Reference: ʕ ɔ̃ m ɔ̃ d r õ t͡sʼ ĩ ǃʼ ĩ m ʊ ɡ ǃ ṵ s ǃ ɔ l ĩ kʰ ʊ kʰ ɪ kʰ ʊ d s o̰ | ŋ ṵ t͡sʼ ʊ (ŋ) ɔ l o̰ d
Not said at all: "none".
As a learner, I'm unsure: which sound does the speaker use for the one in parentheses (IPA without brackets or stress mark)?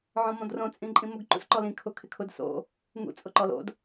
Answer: ǃ